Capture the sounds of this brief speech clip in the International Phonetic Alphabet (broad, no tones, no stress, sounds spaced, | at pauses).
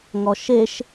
ŋ ɔ ʃ e ʃ